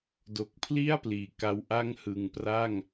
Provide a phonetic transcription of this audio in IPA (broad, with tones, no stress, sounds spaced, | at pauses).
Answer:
d o˨˩ k̚ pʰ l i˥˩ a̯ p l iː˨˩ k a˧ w ʔ a˥˩ ŋ h ɯ˨˩ ŋ p r a˥˩ ŋ